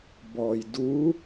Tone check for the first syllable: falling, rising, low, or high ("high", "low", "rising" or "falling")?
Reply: low